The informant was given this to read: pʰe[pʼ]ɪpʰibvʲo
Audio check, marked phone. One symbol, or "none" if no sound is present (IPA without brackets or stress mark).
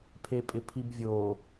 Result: pʼ